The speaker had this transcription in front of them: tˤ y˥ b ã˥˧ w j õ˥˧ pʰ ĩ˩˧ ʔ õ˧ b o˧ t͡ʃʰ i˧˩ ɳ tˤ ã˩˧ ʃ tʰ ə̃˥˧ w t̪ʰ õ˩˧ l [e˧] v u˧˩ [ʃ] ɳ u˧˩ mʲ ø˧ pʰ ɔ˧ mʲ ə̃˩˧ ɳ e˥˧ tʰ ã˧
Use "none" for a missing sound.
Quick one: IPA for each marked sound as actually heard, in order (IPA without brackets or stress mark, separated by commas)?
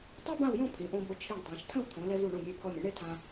ɛ˧, none